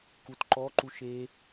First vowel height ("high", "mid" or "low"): high